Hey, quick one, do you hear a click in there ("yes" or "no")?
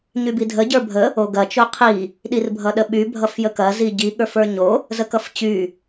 no